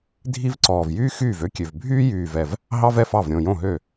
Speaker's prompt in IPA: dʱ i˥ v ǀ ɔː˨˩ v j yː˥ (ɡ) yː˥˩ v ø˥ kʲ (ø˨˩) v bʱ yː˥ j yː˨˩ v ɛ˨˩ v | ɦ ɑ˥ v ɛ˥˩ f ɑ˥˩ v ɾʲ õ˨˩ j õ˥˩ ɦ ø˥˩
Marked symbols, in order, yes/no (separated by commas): no, yes